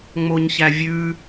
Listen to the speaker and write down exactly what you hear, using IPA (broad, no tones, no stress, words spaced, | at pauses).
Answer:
ŋ͡moɲçævʲʉ